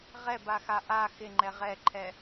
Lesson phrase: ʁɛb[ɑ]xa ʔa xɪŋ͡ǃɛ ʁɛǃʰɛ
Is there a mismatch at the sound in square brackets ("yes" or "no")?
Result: yes